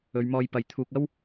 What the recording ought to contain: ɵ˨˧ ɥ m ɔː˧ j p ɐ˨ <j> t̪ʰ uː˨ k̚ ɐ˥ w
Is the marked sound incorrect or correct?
correct